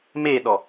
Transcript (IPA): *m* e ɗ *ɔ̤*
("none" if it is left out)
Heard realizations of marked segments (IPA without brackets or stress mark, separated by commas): m, ɔ